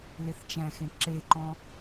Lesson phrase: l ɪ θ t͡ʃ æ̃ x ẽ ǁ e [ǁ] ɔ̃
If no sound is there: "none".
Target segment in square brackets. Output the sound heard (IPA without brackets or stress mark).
ǃ